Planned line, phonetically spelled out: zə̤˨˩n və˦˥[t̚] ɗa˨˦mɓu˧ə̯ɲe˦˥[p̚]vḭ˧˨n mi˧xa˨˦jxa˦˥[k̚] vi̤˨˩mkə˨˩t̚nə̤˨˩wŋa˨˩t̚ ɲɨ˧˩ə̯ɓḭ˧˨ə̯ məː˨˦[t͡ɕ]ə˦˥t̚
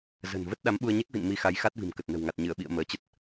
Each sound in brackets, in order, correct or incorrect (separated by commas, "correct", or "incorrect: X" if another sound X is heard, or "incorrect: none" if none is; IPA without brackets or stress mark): correct, incorrect: k̚, incorrect: t̚, correct